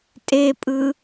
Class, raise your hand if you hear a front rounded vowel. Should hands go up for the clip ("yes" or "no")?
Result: no